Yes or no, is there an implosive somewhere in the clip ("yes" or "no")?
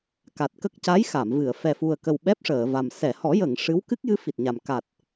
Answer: yes